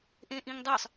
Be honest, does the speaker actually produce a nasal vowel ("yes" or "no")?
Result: yes